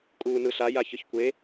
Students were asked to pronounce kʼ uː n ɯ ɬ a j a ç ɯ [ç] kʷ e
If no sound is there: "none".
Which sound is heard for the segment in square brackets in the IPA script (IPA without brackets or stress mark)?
ç